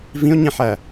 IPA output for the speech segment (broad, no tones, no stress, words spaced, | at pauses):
vĩo̯ɲĩħæ